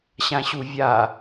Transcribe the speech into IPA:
ɕ ã ɕ u vʲ a

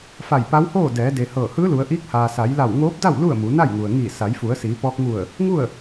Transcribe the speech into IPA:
f a˧˩ j p a˧˥ w h oː˥˨ d ɛː˩˧ d e˩ h ɤː˧˩ h ɯː˧˥ l u˩˧ ə̯ ʔ iː˧˥ k̚ h aː˩ s a˩˧ j l a˧˩ w ŋ oː˧˥ p̚ d a˥˨ w l u˥˨ ə̯ m u˩˧ n a˥˨ j ŋ u˩ ə̯ ŋ iː˧˩ s a˩˧ j f u˩˧ ə̯ s iː˩˧ p ɔː˧ k̚ ŋ u˧˩ ə̯ | ŋ u˥˨ ə̯

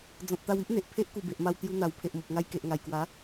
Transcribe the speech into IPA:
d͡z ɔ̃˨ t̚ t̪ a˧ w i˦ ʔ n̪ e˨ ʔ pʰ e˦ ʔ k u˨˩ b e˨ ʔ m a˧ w t̪ j u˧ n̪ a˨˩ w pʰ e˨ ʔ m o˨ p̚ ŋ a˧ j k e˨ ʔ ŋ a˨˩ j k w a˨˦

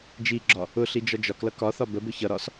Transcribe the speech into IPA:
d͡ʒ i ɡ͡ǁ ɒ | ʊ ɬ i d͡ʒ ɒ d͡ʒ ɒ k l ʌ k ɒ θ ɒ b ə b ʊ ç ʌ ɾ ɒ s

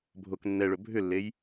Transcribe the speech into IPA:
bʱ o k nː ɛ ɭ ɵ bʱ ʏ lː e j

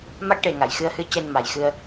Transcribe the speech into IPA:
m a˦˥ k̚ ʈ e˨˩ ŋ a˨˩˨ j x ɨ˧ ə̯ h ɨ˧˥ c e˧ n m a˨˩ j x ɨ˧ ə̯

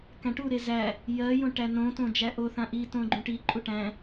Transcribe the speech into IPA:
k æ̃ ʈ u ɾ e z æ | j ɜ j õ ʈ æ n õ t õ d͡ʒ æ ʔ o θ ã ʔ i t õ ɡ͡ǃ ũ ʈ i ǃʼ u ʈ æ̃

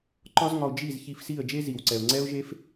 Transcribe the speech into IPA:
ǃ ɒ˥ z ŋ ɒ˧ ʊ̯ d͡ʒ i˥˩ z ç i˧ f s i˥˩ ə̯ d͡ʒ e˥ z i˩ w ǀ ɛ˩ ʊ̯ ŋ͡ǀ ɛ˥ ʊ̯ ʒ e˥ f

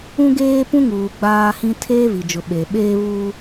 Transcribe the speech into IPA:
ũ˦ ɡ eː˦ p ũ˦ ŋ uː˨ ɡ͡b aː˦ h ĩ˦ tʰ eː˦ v i˨ d͡ʒ ʊ˨ ɓ e˨ ɓ eː˦ β uː˦

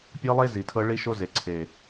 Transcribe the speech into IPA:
pʲ ɤ˦ lˠ e˦ z i˨ tʰ ɤ˦ ɭ i˦ ʃ o˦ z e˨ ǀʰ e˨

